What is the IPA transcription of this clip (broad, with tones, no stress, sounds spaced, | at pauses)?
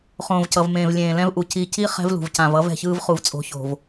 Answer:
χ õː˨ v c ʌ˨ v m ẽː˨ v lʲ ẽː˨ l ɛ̃˦ v ʔ u˨ c i˨ c i˦ χ ɛ̤˦ v l ṳ˨ v c ã˨ v ʌ˦ v ɛ̤˨ ç ɯː˦ v χ u˨ v t͡sʼ o̤˨˦ ç o̤˨ v